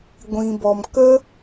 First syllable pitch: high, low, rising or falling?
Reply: low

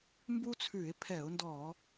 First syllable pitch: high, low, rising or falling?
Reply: high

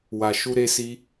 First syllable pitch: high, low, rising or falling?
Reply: low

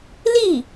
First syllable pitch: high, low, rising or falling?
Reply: falling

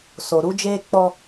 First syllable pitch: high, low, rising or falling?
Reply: low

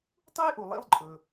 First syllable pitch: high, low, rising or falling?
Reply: high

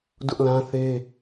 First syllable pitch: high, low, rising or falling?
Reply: high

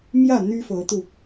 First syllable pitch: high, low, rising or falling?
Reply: falling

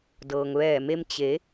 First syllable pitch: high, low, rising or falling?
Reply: low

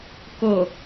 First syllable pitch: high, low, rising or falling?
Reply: low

